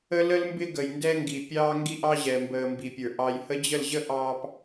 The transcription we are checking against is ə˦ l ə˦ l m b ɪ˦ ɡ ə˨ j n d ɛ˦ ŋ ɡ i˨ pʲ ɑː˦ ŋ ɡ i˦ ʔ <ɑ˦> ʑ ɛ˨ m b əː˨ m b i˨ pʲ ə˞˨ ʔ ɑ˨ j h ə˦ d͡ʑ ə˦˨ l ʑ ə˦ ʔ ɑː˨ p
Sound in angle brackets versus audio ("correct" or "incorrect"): correct